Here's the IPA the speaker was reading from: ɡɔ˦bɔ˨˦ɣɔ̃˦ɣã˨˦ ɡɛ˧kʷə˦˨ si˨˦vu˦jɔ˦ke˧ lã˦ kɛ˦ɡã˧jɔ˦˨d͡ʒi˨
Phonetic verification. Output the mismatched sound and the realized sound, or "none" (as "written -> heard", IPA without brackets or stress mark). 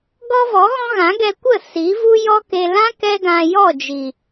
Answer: b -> v